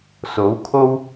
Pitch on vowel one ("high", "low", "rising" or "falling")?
rising